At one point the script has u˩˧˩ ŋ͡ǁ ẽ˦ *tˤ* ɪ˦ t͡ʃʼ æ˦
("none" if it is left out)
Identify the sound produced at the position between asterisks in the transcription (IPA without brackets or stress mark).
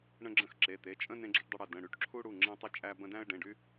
tˤ